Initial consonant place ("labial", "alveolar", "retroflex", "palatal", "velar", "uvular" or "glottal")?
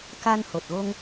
velar